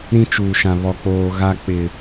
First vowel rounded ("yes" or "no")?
no